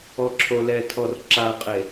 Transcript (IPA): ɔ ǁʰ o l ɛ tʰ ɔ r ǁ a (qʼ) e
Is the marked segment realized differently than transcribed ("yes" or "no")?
no